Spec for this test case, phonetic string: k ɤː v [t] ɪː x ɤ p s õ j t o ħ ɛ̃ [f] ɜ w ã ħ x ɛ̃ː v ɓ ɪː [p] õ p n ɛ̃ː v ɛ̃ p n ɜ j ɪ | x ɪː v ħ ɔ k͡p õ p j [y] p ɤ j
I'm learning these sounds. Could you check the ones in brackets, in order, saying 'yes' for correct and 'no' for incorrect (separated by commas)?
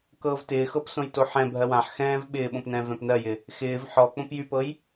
yes, no, no, yes